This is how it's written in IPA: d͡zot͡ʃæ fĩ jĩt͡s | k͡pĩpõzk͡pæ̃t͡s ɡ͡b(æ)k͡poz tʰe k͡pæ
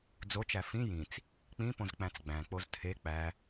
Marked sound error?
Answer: yes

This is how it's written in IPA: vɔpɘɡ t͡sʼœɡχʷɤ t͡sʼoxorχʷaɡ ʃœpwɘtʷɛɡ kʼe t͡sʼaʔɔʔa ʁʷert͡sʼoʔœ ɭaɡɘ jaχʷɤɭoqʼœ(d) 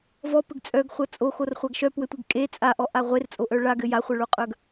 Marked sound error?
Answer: yes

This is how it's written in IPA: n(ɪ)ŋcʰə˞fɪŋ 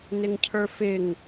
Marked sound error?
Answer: no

